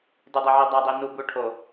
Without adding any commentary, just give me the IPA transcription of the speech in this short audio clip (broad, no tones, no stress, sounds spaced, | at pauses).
d ʉ dˤ ɛ ʕ i dˤ a dˤ i n u b u ʈʰ o